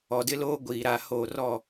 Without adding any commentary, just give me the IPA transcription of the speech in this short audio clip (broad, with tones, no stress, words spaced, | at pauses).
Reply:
ɔ˨dɪ˦loː˦ ɡʷiː˨ ɾa˨ ho˦˨ rɔ˦˨